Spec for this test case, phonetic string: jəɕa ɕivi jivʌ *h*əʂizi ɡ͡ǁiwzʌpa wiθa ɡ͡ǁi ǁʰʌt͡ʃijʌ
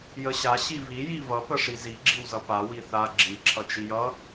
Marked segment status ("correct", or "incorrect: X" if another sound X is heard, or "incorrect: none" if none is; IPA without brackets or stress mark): incorrect: p